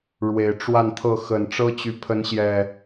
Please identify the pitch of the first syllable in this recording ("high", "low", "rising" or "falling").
low